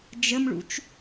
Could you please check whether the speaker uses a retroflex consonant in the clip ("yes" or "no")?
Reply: yes